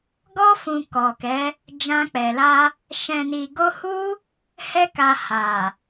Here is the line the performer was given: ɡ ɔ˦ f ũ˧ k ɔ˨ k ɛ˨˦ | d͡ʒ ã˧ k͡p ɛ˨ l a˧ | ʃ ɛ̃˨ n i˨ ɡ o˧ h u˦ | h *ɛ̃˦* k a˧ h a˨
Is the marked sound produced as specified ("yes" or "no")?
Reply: no